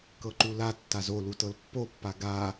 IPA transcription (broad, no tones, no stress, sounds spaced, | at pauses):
k ɤ ǃ u l a tː a z o l u t ɤ l pː o pː a ɡ a